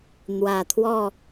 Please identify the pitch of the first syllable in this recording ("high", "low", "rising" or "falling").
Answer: low